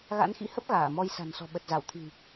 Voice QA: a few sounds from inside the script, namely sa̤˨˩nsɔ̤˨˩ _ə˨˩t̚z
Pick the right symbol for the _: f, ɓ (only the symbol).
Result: ɓ